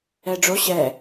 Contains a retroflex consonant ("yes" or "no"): yes